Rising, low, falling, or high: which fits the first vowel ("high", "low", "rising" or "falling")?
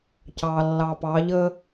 low